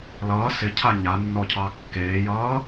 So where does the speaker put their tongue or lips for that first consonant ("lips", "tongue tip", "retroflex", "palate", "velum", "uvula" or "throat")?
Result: tongue tip